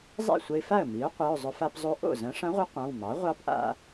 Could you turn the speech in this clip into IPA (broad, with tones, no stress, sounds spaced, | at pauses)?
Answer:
zˤ ḛ˥˩ sʷ ə˧ ɪ̯ f a˥˩ ə̯ m i˩˥ ʊ̯ qʷ e˩˧˩ ʊ̯ zˤ ʊ˧ f a˧ p zˤ o˧˥ ʔ o̰˥˩ z ɐ̃˧˥ ʂ ɐ̃˧˥ ʁʷ ə˧˥ qʷ ã˩˧˩ w m ɑ˩˥ ʁʷ ɑ˧˥ p ʔ a̰˧